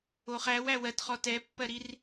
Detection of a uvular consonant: present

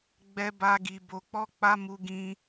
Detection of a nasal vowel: present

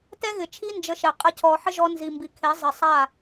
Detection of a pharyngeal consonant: present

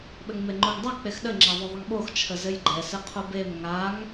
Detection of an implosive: present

